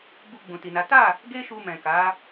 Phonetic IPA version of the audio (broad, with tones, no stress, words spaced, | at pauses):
bu˧ɡ͡bũ˨ti˨na˨˦ ta˦˨ | ɡe˦ʃu˧ mɛ̃˨ka˨˦